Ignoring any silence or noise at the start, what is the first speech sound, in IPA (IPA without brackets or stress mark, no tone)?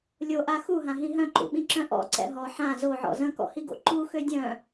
lʲ